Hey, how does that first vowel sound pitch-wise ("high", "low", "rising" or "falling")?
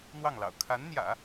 falling